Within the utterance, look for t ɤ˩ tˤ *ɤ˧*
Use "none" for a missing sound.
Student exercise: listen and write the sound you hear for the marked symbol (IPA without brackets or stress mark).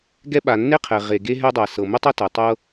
ɤ˧